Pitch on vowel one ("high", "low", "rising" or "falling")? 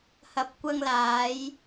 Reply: low